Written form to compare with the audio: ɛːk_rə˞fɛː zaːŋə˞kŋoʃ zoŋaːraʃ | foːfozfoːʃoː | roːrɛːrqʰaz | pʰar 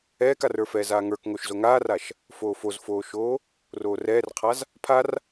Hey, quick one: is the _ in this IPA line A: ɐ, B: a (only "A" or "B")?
B